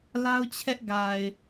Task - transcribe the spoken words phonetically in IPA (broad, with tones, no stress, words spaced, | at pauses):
la˦ʊ̯t͡ɕʰɛ˦ʔ ɡa˨ɪ̯